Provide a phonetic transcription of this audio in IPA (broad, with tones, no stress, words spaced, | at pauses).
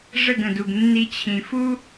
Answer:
ʐə˦˨ɡə̃˨du˨ɡ nːi˧t͡ɕʰĩ˨ fu˦